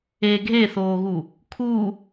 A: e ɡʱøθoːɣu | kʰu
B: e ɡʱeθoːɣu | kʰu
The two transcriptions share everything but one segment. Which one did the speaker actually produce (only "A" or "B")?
B